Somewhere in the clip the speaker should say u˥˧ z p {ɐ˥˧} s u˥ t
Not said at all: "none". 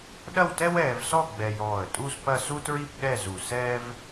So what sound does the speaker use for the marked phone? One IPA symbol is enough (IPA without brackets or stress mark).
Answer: ɐ˥˧